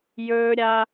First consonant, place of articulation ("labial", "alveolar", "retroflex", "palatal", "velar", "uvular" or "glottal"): palatal